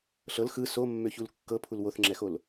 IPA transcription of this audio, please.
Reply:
ɬ ɤ l x ɯ s o mː ø ç u l kː ɤ pʰ u l w o θ ŋ͡ǁ ɛ x o l

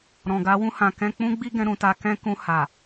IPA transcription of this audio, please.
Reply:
ɾ ɔ̃˨ ɡ a˨˦ w ũ˦ h ã˧ k ɛ̃˦ k͡p ũ˦ ɡ͡b i˦ ɡ ɛ̃˧ ɾ ũ˧ t a˧ k ɛ̃˦ k ũ˧ h a˨

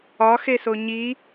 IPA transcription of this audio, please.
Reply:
ɒ x e s o ɲ i

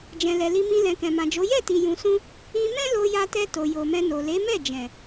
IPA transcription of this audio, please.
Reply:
d͡ʒ ɛ̃˨ l ɛ˨ l i˧ m ĩ˧ l ɛ̃˨ k ɛ̃˨ m ã˨ d͡ʒ o˨˦ j ɛ˦˨ t i˨ j ũ˨ s ũ˧ | ĩ˧ m ɛ̃˦ l o˧ j a˧ t ɛ˧ t o˨ j o˨ m ɛ̃˧ n o˨ l e˨˦ m ɛ˦˨ d͡ʒ ɛ̃˨

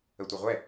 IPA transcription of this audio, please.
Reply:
ə tʷ ɘ ʁʷ ɛ

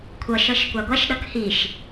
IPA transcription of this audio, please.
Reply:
kʷʰ ʌ ʃ ʌ ʃ kʷ a ɡʷ a ʃ ɗ ʌ k h i ʃ

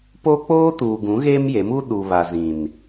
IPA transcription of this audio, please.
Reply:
p o˦ k͡p oː˦ t uː˨ ɡ ũ˨˦ ɣ eː˦ m j e˨˦ m u˦ ɗ u˨ β a˨ z ĩ˨ n

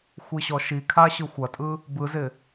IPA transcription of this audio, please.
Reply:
xʷ i ɕ ɔ ʃ i kʰ a ɕ ɯ xʷ ɐ tʼ ɯ | b ɯ z ɪ

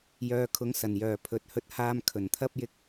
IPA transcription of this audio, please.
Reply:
j œː˨ kʰ ʊ˨˧ ŋ s ɐ˨˩ n j œː˨˩ pʰ ɵ˨ t̚ h ɵ˧ t̚ h aː˧ m kʰ ɵ˨˩ n t̪ʰ ɐ˥ p̚ j ɪ˧ k̚

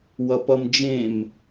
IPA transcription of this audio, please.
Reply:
w ʌ p ʌ m d͡ʒ ẽ m

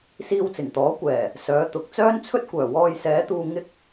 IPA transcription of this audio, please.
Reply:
s iː˧ w t͡s ɪ˨˩ ŋ t̪ ɔː˨˥ kʷ ɛː˨˩ | s œː˨˥ t̪ ʊ˨ k̚ t͡s œː˥ n t͡sʰ ɵ˥ t̚ kʷ œː˨˩ w ɔː˧ j s ɛː˨˥ t̪ uː˧ ŋ ɪ˧ k̚

